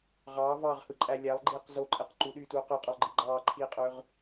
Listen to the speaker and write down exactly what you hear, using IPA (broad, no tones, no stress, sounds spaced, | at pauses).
ʁ ɑː v ɑː ʁ h ɯ ǃʼ æ lʲ æ lˠ ɡ͡ǃ iː q z o ǃʼ e q ǃ u ɗ yː t uː q ø qʼ ø lˠ ɡ͡ǃ i ɡ͡ǃ ɑː ǃʰ iː qʼ ø ʁ